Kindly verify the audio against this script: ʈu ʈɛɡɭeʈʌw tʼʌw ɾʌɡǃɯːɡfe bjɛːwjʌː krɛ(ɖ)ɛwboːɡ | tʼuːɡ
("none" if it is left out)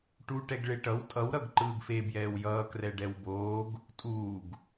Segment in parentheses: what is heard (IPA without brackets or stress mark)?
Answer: ɖ